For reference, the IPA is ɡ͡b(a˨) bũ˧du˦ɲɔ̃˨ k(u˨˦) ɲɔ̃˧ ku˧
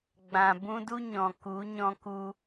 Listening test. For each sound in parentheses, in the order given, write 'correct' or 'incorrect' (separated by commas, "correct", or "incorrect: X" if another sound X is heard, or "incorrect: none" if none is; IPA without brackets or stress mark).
incorrect: ã˨, correct